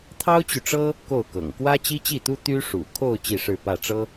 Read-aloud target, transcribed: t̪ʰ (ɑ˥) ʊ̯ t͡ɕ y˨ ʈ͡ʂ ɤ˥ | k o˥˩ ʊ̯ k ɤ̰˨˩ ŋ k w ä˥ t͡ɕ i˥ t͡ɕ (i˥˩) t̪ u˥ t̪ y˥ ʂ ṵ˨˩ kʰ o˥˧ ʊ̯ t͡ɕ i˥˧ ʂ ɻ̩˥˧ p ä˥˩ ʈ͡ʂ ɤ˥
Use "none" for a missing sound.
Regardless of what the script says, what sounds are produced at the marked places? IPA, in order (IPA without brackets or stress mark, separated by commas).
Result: ɑ˥, i˥˩